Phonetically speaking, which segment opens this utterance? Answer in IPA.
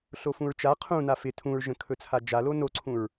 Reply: ɬ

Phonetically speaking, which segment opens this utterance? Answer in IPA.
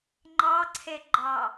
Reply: ŋ͡ǃ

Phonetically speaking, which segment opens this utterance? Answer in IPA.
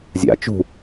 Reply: zʲ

